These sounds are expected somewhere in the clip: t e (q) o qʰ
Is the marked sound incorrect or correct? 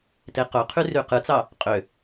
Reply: correct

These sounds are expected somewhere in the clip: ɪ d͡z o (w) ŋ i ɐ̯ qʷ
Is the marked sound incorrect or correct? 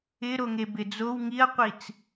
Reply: correct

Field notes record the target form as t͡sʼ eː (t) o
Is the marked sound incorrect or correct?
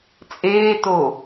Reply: correct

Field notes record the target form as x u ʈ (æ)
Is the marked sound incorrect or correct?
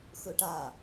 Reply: incorrect: a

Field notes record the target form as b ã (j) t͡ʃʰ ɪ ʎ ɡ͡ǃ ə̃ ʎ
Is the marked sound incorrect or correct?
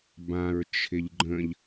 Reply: incorrect: ɹ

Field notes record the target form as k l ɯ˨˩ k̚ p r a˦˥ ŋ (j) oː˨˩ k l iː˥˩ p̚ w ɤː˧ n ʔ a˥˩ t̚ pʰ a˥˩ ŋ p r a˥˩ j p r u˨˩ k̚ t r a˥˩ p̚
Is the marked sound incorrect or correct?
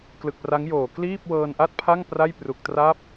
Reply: correct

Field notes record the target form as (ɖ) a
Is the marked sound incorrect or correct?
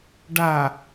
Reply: correct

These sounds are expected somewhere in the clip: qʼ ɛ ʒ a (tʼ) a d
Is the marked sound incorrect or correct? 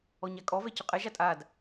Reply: correct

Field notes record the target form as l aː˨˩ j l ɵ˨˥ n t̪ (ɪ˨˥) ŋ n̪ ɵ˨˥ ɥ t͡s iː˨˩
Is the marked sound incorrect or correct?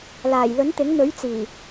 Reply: correct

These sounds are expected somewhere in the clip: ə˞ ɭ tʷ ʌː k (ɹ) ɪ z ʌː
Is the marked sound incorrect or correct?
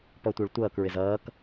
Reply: correct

